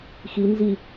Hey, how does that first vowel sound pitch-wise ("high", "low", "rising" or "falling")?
rising